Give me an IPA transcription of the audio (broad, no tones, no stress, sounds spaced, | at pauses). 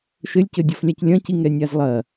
ʃ ɘ lʲ c ɘ dʲ ɔ f lʲ a c lʲ ɐ̃ c i ŋ ɾ ɛ nʲ a z lˠ ɐ